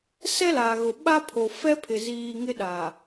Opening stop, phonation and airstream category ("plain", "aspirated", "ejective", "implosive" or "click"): implosive